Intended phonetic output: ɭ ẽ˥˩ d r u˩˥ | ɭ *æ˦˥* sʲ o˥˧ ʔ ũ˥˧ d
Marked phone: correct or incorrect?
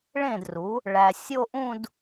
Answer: incorrect